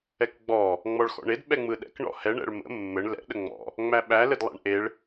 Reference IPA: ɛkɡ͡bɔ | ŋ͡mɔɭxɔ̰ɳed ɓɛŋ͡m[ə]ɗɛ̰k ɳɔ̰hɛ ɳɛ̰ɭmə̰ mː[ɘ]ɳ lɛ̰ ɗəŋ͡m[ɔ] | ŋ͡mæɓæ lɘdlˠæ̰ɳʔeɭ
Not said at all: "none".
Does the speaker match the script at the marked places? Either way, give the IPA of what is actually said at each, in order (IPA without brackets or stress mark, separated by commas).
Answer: ɯ, ɘ, ɔ̰